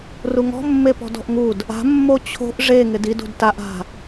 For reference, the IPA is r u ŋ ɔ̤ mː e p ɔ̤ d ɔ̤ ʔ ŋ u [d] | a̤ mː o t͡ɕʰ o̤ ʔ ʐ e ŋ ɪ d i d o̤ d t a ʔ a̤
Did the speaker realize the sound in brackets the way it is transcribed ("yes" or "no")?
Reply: yes